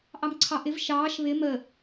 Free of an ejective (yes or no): yes